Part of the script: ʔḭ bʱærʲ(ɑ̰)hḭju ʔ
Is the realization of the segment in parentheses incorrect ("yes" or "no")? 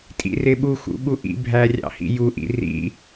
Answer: no